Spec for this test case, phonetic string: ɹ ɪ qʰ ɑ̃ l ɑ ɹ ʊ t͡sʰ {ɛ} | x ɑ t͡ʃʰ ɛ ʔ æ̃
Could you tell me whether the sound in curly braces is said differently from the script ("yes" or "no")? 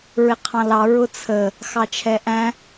yes